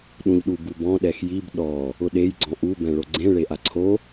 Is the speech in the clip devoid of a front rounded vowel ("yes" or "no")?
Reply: yes